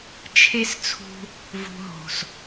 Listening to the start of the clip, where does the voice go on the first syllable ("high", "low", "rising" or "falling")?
high